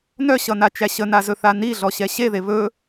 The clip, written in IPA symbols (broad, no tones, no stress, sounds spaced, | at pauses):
n œ ɕ ʌ n a t͡ʃ æ ɕ ə n a z ɵ θ a n i ɮ ɔ ɕ ɛ ɕ e ð e β ɵ